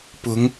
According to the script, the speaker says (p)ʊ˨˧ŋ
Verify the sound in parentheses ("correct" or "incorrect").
correct